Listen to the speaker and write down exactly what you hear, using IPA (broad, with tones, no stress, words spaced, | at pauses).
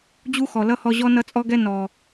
d͡ʑu˦xɔ˨lʌ˦ hɔ˧ʑɔ˦ nʌ˦t͡sʼɔ˦ɡɛ˦ nɔ˨